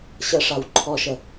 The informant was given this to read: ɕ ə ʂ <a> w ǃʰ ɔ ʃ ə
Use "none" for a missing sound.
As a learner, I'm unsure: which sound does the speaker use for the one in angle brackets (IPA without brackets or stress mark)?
a